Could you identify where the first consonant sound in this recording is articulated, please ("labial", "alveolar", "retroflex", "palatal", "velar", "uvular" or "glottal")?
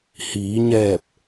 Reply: glottal